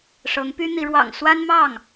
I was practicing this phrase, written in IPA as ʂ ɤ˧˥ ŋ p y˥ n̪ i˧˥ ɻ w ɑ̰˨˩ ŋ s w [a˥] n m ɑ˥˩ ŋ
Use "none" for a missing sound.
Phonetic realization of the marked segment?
a˥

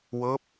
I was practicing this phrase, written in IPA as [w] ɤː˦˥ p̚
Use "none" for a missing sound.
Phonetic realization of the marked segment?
w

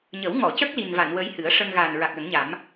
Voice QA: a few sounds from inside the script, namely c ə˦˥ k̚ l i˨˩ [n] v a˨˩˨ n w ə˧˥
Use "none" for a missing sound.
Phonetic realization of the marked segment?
n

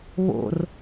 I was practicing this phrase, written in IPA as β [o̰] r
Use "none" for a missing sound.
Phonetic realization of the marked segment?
o̰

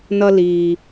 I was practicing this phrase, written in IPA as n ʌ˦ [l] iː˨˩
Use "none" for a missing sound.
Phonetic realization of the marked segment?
l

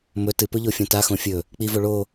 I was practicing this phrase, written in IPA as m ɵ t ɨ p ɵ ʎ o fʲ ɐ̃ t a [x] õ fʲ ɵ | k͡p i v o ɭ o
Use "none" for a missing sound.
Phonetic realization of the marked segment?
x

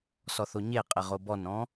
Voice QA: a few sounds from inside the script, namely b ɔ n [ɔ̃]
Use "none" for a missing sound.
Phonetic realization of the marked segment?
ɔ̃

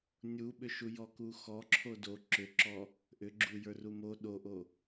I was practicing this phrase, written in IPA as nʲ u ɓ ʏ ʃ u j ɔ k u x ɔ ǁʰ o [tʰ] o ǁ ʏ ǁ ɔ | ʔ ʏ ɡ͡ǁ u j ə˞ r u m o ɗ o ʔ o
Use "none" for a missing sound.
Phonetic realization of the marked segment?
d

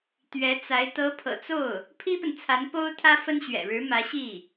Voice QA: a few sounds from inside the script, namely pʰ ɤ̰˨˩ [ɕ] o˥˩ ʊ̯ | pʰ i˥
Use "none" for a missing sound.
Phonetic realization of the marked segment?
t͡s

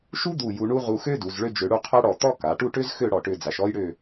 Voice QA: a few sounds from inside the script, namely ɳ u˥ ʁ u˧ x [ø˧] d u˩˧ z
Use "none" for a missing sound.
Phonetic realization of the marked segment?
ø˥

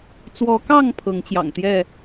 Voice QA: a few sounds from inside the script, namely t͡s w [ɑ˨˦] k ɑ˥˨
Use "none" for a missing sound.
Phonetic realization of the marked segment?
ɔ˨˦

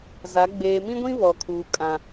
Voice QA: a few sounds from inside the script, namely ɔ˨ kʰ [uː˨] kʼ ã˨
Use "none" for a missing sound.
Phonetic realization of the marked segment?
uː˨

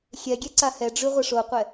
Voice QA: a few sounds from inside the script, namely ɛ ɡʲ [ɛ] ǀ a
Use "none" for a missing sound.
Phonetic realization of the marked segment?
ɛ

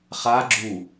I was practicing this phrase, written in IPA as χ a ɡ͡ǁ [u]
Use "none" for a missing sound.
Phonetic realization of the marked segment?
u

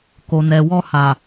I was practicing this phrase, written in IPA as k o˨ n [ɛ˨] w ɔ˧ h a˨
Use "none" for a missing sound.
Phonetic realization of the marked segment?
ɛ˨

